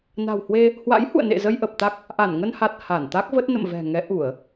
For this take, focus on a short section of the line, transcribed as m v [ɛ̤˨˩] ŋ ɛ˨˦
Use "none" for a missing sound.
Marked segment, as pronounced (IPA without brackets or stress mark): ɛ̤˨˩